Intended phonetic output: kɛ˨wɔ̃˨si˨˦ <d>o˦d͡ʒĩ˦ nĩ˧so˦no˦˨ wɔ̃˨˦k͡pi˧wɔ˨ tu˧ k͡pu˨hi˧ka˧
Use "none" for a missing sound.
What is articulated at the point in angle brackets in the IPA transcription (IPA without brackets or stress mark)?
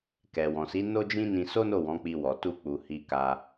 n